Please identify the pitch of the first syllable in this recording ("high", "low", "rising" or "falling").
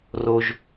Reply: low